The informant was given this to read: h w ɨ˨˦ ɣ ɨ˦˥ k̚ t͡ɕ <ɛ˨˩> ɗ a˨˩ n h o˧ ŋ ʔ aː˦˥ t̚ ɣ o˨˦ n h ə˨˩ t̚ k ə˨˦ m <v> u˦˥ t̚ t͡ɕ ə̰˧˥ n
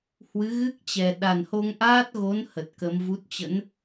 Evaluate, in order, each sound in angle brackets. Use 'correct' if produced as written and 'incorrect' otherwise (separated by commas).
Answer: correct, correct